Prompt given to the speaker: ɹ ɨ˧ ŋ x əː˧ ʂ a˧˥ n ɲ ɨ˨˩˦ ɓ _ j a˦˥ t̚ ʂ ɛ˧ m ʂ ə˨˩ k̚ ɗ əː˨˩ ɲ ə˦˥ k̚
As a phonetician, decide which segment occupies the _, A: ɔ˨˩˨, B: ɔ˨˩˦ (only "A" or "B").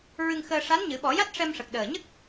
B